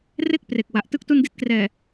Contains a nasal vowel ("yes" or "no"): no